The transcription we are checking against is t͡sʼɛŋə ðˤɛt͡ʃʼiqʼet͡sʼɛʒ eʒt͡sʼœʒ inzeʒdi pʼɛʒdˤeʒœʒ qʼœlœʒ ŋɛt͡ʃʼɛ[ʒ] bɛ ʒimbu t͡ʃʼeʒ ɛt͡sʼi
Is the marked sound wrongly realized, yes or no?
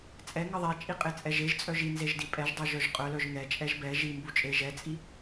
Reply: no